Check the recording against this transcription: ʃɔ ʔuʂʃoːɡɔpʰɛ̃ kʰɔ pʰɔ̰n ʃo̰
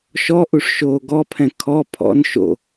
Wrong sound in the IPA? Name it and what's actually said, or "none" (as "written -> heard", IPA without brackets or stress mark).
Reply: none